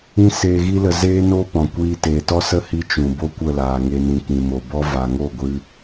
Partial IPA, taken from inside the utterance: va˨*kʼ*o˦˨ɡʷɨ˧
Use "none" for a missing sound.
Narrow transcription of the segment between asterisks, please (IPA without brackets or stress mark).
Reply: ŋ